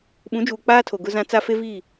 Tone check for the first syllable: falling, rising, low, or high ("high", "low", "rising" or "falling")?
rising